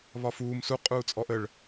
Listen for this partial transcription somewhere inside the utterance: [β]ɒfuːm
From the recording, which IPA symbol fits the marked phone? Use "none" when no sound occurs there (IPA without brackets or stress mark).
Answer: β